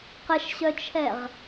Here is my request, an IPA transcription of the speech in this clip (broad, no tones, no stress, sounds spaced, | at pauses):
q ə ʃ ɕ œ t͡ʃʰ ɛ ʁ